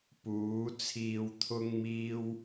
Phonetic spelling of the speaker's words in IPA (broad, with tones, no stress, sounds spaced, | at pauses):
p uː˨˥ t͡sʰ iː˧ w t̪ʰ ʊ˥ ŋ m iː˥ w